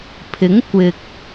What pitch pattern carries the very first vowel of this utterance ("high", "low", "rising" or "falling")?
rising